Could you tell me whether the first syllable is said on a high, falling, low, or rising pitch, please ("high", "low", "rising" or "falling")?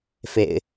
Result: low